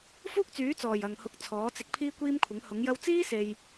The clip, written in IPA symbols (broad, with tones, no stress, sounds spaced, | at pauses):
f uː˥ k̚ t͡s yː˨˥ t͡s ɔː˨˩ j ɐ˨ ŋ h ʊ˧ k̚ t͡sʰ ɔː˨˥ t͡s ɪ˧ k̚ pʰ iː˥ kʷ iː˥ m kʷʰ ɪ˨˥ ŋ h ʊ˨˥ ŋ j ɐ˥ w t͡s iː˥ s e˨ j